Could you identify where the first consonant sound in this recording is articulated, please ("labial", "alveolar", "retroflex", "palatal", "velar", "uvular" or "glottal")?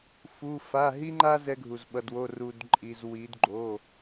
labial